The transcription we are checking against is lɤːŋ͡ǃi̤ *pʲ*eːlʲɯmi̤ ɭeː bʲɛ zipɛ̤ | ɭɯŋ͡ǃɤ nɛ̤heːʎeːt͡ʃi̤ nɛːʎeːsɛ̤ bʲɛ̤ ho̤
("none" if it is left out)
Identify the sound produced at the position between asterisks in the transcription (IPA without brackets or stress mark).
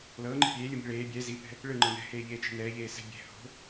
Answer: pʲ